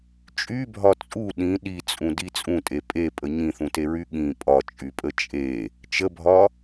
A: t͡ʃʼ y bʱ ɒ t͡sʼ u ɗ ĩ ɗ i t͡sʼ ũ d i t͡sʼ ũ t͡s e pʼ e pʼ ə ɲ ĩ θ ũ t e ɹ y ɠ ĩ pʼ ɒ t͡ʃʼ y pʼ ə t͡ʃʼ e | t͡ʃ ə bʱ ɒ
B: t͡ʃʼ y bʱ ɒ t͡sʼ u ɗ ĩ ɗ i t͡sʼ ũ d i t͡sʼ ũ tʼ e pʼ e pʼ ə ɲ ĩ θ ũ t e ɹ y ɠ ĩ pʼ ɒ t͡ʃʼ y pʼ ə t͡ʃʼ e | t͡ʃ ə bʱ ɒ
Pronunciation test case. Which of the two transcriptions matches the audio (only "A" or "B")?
B